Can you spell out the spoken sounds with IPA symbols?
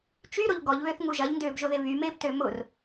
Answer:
t͡ʃ y ɾ o ʎ ɡ ɔ ʎ β ø θ ŋ u ʒ ɐ ʎ n d ʏː b ʒ ʊ ð ɪ β y m ɪː b t ø m ʊ r

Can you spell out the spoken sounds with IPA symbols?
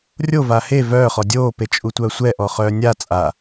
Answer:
rʲ o v a h e v œː χ ɔ dʲ oː p e t͡ʃʼ u tʷ œː sʷ ɛ ʔ ɔ χ œː nʲ a t͡sʼ a

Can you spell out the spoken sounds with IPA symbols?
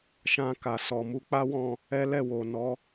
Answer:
ʃ ã˧ k a˨ s ɔ˨ m u˧ k͡p a˦ w ɔ̃˦˨ | ɛ˦ l ɛ˦˨ w o˨ n ɔ˨˦

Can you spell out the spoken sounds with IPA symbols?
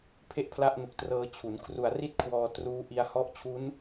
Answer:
pʰ e˥˩ ʔ pʰ l a˥˩ ʔ n u˨˩ k̚ t r ɤː˧ t͡ɕʰ u˩˦ n kʰ r u˨˩ a̯ r i˥˩ t̚ kʰ w ɔː˧ t r uː˦˥ ʔ i˧ a̯ h ɔ˦˥ ʔ t͡ɕʰ u˦˥ n

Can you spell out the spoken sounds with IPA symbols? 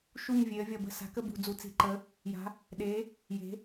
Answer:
ʃ u˦˨ ɲ vʲ e˩˧ ə̯ vʲ ʌ˨˩ b ə̤˦˨ s a̤˩˧ k ə˦˨ b ṳ˨˩ d͡z u˩˧ t͡s i̤˩˧ ǃ ə˩˧ | j a̤˩˧ | ɗ e˩˧ | j e̤˩˧

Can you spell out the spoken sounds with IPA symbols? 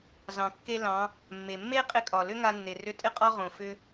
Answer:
z ɑ̃˩ kː e˧ l ɑ̃˩˧ | mː e˩ mː e˥ qʼ ɪ˧˥ kʼ ɒ˩ l ʏ˥ ŋ a˧ nː e˩ r ʏ˧˥ tʼ ɪ˥ qʼ ɒ˥ ʁ õ˩ f ʏ˧

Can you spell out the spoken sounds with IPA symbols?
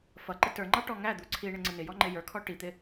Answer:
f ʌ ǃ ɪ t ə˞ ŋ͡ǃ ɑ ʈ ɔ ŋ æ d̪ u ǀʰ i ɳ ɪ ŋ͡ǀ ə n ɪ j ɔ ŋ͡ǃ ɪ j ə˞ kʰ ɔ ʈ i t̪ ɪ

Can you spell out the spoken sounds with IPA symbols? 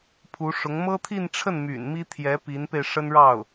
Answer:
pʰ u˧˥ ʂ ʊ˧˥ ŋ m ɤ˥ t̪ʰ i˥˧ n ʈ͡ʂʰ ə˥˩ n m y̰˨˩ n m i˥ t̪ʰ j ɛ˧˥ p i˧˥ n p e˧ ɪ̯ ʂ ə˥ n ɻ ɑ˥˩ ʊ̯

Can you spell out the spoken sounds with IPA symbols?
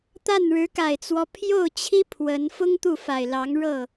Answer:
t̪ a˥˩ n ɻ ɻ̩˧˥ k a˨˩ ɪ̯ t͡s w ɔ˦ pʰ j o˥˩ ʊ̯ t͡ɕʰ i˥ pʰ w ə˧˥ n f ʊ˥ ŋ t̪ u˥˩ f a˨˩ ɪ̯ l ɑ˧˥ ŋ ɻ ɤ˥˩

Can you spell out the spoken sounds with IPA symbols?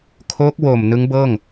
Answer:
kʰ o˦˥ k̚ w o˨˩ m n ɯ˦˥ ŋ b ɤː˥˩ ŋ

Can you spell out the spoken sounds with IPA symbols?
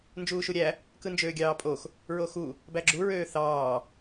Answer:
n d͡ʒ uː ʃ u ɾʲ æ | k ɯ n d͡ʒ øː ɡʲ ɑː pʼ o x | ɹ o x u | b æ ɡ͡ǁ u ɹ øː θ ɑː

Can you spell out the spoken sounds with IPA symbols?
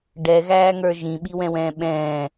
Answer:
ɖ ɛ ɣ æː ŋ ə˞ ʒ ĩ ɓ i w ɛ̃ w ɛ̃ː ɓ ɛ̃ː

